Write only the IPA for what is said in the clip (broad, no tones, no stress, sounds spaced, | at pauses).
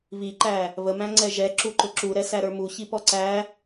β i ǃ æ | β ə m æ̃ ŋ͡ǀ ɛ ʒ ɛ ǁ u ǃ ʊ ǁ u ɾ ɛ s æ ɾ ə˞ m u ç i p ɔ ǀ æ